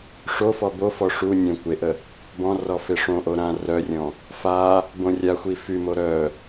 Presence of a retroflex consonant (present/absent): present